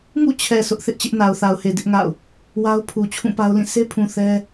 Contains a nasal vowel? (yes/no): yes